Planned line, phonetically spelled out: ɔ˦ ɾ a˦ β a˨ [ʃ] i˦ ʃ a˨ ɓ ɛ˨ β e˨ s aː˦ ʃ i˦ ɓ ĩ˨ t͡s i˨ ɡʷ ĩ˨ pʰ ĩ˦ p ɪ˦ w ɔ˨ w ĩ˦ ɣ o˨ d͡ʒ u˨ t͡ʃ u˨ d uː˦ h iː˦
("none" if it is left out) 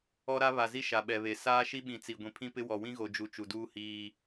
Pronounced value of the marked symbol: z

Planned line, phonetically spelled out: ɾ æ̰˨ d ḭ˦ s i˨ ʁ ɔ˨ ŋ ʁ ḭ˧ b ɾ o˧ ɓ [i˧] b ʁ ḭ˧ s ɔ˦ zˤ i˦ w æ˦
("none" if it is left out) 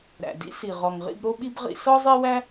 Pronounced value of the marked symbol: i˧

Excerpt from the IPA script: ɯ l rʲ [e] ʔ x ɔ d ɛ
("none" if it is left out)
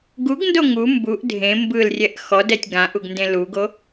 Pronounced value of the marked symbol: ɛ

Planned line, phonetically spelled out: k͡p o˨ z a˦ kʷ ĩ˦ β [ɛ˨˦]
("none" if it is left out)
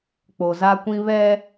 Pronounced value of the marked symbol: ɛ˦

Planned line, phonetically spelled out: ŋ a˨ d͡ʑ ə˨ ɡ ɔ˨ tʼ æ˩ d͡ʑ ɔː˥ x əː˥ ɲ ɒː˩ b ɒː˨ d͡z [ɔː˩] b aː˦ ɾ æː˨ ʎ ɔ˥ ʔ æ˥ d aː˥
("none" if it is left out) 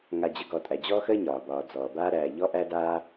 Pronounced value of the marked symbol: ɔː˩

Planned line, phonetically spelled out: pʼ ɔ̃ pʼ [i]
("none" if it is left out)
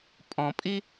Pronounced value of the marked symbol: i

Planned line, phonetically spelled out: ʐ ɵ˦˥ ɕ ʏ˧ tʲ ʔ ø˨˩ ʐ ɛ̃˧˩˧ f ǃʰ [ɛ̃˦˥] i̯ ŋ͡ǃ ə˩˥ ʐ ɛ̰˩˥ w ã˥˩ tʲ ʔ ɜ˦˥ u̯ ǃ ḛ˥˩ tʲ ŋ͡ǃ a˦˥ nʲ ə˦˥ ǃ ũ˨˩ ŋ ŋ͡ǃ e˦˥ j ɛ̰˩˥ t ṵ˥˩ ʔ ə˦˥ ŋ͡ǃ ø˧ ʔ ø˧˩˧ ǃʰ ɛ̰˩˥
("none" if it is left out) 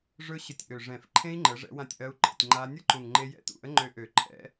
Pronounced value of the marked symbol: ẽ˦˥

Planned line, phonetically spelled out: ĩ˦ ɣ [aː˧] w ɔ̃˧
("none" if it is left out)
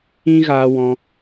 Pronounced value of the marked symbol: aː˧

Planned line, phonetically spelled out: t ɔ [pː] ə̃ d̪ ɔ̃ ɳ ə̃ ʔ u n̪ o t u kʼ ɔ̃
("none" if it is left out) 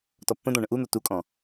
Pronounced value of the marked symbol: pː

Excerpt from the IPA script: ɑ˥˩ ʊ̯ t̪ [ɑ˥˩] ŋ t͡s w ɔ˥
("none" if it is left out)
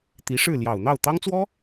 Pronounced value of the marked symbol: ɑ˥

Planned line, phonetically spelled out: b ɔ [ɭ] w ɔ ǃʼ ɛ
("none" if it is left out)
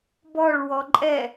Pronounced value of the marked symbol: ɭ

